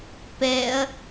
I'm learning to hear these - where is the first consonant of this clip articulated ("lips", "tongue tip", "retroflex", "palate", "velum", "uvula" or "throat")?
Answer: lips